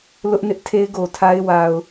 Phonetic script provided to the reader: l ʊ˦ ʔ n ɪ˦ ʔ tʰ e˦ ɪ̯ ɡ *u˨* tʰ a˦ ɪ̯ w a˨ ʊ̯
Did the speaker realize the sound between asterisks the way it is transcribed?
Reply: no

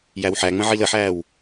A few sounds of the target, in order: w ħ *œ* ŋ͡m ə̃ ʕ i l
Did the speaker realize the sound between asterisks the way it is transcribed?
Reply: no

